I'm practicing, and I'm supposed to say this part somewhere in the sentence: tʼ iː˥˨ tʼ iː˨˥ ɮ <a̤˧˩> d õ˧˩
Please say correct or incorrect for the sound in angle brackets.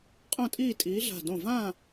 correct